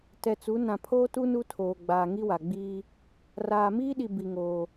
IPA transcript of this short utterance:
tɛ˨t͡su˨˦ nã˨pʰoː˦tu˦ nu˦tʰoː˨ ɡ͡baː˨ŋi˦ wa˨ɡ͡biː˦ | raː˨miː˦ɗi˨ bi˨ŋoː˨

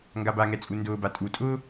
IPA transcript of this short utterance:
ŋɡabaŋɛt͡sʼu ndʊːba tʼutʼʊː

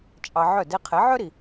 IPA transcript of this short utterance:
t͡ʃʼɑ˧ʕœ˥˩ de˧qʰɛ˩˥ʕœ˥ɾi˩

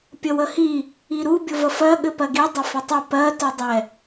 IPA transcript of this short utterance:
pʲəwəhi | iɾu bʲʊvəfɜ ɠɘpɜɡi dˤɘfɘtˤʊ pɜ tʊdˤɛ

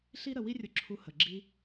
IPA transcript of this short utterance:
ɬi˥ ɾə˧ wi˥rʲʊ˧ǁʰu˧ hə˩ɡ͡ǁi˧

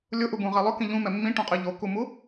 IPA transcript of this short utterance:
lʲʊʔubũʁɛ lˠʊkĩ ʎũmɛ mːĩʈũqʼi ʎokumu

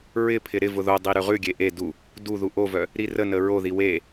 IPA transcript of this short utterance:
ɹɪpʰɪ ɾɪ vʊðodˤi ɾʉʁʉɡʲe ʔe du | duðu ʔovœ | ɾirənə ɹoði we

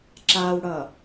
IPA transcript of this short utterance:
ǁawɽʌ

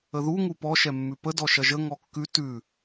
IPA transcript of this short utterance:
əðu ŋupɔ ʃɛmːʉpə dɔʃɐʒə ŋɔkːʉ tʉ

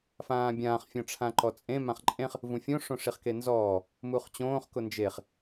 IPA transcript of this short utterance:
fãːbʲãːχ fʲɔ̃ʈ͡ʂʰãǃɔt͡sʼẽ mãχǃʼẽχ | vũfʲõ ʂõʂiχkenzɔː | muχt͡ɕõːχ kʊnd͡ʒeχ

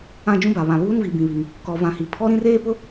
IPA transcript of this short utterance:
ã˦d͡ʒũ˦ba˨βã˨ βuː˦nvi˨bĩ˨βi˨ŋ | kɔ˨vã˨hi˨ pʰɔ˦ɾĩ˦reː˦pʊ˦

